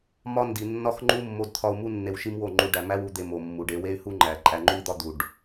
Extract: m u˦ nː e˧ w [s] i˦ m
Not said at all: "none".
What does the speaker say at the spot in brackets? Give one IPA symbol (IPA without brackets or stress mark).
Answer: ʃ